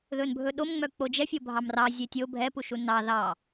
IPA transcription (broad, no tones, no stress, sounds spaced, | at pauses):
ð ɵ n bʱ ɵ ɗ o m ŋ͡m œ k͡p o d͡ʒ ɛ fʲ o bʱ ɑ m r ɑ zʲ e tʲ o bʱ ɛ p u ʃ u n ɑ ð ɑ